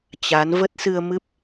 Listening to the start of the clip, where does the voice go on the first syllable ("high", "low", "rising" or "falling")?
rising